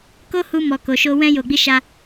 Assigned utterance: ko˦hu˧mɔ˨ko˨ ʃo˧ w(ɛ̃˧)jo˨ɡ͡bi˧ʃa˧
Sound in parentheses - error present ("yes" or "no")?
no